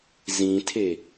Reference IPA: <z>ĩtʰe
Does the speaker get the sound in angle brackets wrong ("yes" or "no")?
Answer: no